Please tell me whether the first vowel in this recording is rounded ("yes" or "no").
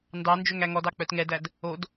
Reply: no